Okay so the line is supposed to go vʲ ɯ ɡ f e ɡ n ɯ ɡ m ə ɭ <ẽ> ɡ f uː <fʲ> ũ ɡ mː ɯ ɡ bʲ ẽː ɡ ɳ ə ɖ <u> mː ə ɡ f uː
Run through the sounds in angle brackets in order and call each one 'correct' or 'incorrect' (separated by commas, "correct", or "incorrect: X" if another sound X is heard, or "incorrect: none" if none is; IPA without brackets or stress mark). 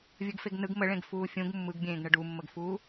correct, correct, correct